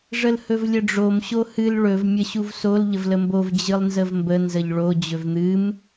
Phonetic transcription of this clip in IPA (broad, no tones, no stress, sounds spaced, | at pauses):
ʐ ə l h ɵ v lʲ ə ɖ͡ʐ o m ɕ o h ɨ l ɭ ɵ v mʲ ə ɕ u v s o l ʎ ə v l ə m b o v d͡ʑ ɨ lˠ n z ə v m b ə n z ə ʎ ɭ o d͡ʑ ɵ v n̪ ɨ m